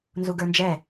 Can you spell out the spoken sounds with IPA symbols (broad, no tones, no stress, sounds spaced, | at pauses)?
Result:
n z u ɡ ə˞ n d͡ʒ ɛ